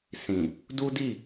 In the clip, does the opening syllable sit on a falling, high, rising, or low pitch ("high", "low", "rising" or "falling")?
low